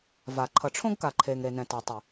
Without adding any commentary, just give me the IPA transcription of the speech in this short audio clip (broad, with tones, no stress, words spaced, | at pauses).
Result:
va˨ ǃʰʌ˨ʈ͡ʂʰõ˦ɡka˨ ǃʰeː˨ŋɾe˨nɛ̃˨ ta˨tˤi˨